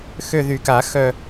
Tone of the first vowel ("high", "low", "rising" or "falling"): falling